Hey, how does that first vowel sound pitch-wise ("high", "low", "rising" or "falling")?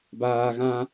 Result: low